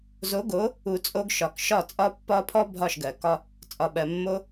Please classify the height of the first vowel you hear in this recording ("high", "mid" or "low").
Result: mid